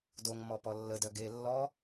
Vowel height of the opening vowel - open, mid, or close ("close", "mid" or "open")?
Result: mid